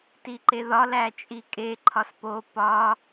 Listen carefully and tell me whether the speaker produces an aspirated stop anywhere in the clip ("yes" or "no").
yes